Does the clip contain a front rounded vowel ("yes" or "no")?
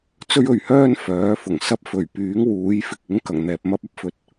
yes